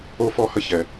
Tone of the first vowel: high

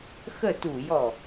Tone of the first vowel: falling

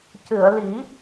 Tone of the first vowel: low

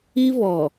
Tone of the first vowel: high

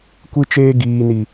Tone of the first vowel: high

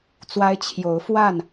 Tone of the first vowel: high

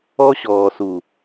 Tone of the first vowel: high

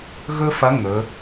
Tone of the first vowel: high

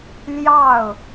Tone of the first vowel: falling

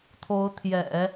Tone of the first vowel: rising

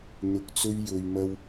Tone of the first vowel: low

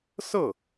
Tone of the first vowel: falling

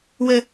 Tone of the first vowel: low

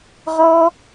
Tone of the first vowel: high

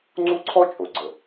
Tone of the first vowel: high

